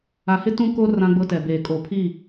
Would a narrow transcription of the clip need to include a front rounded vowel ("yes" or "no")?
no